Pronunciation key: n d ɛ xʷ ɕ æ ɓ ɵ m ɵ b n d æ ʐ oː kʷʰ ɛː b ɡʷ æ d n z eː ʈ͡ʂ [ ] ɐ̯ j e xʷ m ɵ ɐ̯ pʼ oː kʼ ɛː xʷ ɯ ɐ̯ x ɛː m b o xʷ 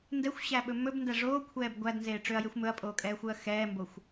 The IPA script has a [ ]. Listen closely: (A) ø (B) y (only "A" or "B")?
A